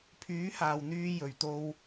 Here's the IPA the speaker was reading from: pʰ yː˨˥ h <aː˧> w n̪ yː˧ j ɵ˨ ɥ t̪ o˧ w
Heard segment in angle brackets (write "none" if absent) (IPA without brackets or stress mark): aː˨